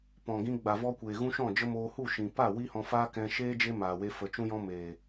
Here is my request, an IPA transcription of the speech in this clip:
p ɔ̃˨ ɡ ĩ˧ ɡ͡b a˨ v ɔ˧ kʷ eː˨ ɣ ũ˦ ʃ ɔ̃˦˨ d͡ʒ ə˦ m oː˧ h u˦˨ ʃ ĩ˨ p a˦˨ w i˦ h ɔ̃˧ f aː˦ k ɛ̃˧ ʃ eː˦ d͡ʒ e˦ m aː˨ w e˧ f ə˨ t͡ʃ ũ˧ j ɔ̃˧ m eː˨

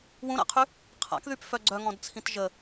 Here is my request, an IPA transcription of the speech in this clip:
w ũ ɾ a̰ qʰ y | qʰ a̰ k ð y p f œ ɡ͡ǀ œ ŋ ɔ̃ d t͡sʰ ĩ t ʒ ə

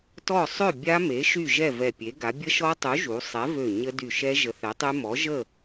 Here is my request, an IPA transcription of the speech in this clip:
t ɔ˥˨ sˤ ø˥˨ bʲ a˦˥ m e˨˥ ʃ y˥˨ ʒ ɛ˥˨ v ɛ˧˩ pʲ e˨˥ ɡ a˨˥ bʲ ə˦˥ ʃ ɔ˦˥ tˤ u˨˥ ʒ u˨˥ sˤ ɛ˨˥ v ø˧˩ ɲ ə˦˥ d y˧˩ ʃ ɛ˦˥ ʒ ə˨˥ θ ɛ˨˥ tˤ y˦˥ m ɔ˨˥ ʒ ə˥˨

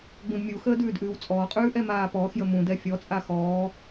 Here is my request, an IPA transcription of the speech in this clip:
ɡ͡b ũ d mʲ u x əː d ʉː d ʔ ʉː w t͡sʼ ɔː qʼ ʉː ʔ ɛ m aː p ɔː x j ə m ũ d ɛ fʲ ɔ t͡sʼ a x ɔː

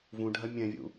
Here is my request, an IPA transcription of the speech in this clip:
v ũ ɖʱ ɐ mʲ ɛ̃ vʲ ṵ

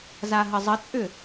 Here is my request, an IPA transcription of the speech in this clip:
z a ɦ ə zˤ ə t͡sʼ ʏ

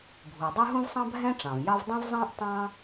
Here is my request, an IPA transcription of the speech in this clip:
bʱ u˩ dˤ ʉ˥ ɦ ũ˥ v sˤ ɑ̃˥ bʱ ɛ̃˥ ʈ͡ʂ ɑ̃˩ v j ɑ˥ v dˤ ɛ̃˥ v zˤ ɑ̃˥ ʔ tˤ ɑ̃˥

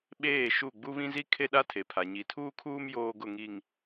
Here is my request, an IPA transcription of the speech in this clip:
ɓ eː˦˨ ʃ u˦˨ ɡ͡b u˦ β ĩ˦ z i˦ kʰ e˦ ɗ a˦ tʰ e˨ pʰ a˨ ɲ i˨ tʰ uː˦ kʰ uː˦ m j oː˦ ɡ ʊ˦˨ ŋ i˨ ŋ

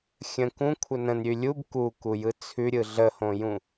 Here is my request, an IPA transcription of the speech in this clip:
xʲ ə̃ k ũ kʷʰ ə n ə̃ n ɾʲ ʉ lʲ u b k u k u j ɯ t͡sʰ ʉ ɾʲ ɯ ɮ ə h õ j ũ

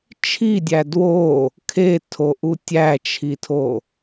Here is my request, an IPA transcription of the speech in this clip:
t͡ʃʰ i dʲ æ d w o | kʰ e tʰ o ʔ u tʲ æ t͡ʃʰ i tʰ o

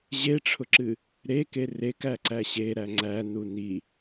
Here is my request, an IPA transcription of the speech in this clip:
ʑ e ʈ͡ʂʰ ʊ ǁ ɨ | ɾ e k e r e k æ ǀ æ ɕ e ɾ æ ŋ͡ǀ æ n u n i

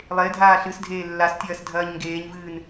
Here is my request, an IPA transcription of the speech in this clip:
lˠ e dʱ aː ɬ ɨ s dʱ eː lː a s tʲ ɐː s dʱ ɐː ɲ ŋ ɡ eː ɲ v ɨː n

